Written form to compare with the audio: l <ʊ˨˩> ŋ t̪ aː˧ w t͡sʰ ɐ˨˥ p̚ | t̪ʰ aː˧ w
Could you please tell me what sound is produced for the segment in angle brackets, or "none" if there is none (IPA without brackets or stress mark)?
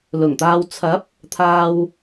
ʊ˨˩